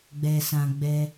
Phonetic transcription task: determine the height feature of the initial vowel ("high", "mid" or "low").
mid